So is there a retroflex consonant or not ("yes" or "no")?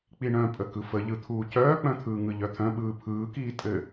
yes